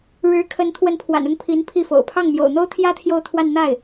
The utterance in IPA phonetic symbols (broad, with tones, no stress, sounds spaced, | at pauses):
ɻ ɻ̩˧˥ kʰ ə˧˥ n t̪ʰ w ə˧˥ n pʰ w a̰˨˩ n ʊ˥˩ ŋ pʰ i˧˥ n pʰ i˥˩ f o̰˨˩ ʊ̯ pʰ ɑ˥˩ ŋ m j o̰˨˩ ʊ̯ n̪ o˥ ʊ̯ t̪ʰ j ä˥ t̪ʰ j o˥˧ ʊ̯ t̪ʰ w a˥˧ n n̪ a˥˩ ɪ̯